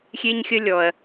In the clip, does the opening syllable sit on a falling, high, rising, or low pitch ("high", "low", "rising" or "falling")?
high